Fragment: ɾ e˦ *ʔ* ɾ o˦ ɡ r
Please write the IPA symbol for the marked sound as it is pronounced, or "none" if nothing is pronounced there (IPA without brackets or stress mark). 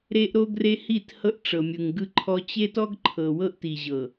ʔ